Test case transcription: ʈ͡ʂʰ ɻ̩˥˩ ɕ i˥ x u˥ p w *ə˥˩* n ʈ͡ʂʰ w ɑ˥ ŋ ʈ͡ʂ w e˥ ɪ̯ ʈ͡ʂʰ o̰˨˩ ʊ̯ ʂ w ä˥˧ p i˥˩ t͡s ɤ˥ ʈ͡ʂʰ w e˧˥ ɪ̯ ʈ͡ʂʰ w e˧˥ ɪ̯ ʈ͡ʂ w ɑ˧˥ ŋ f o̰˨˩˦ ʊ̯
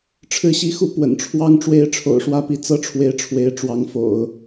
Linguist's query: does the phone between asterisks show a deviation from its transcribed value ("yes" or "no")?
yes